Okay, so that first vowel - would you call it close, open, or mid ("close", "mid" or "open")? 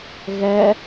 mid